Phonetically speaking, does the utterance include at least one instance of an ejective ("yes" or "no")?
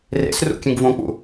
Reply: no